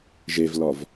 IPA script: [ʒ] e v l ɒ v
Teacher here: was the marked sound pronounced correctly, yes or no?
yes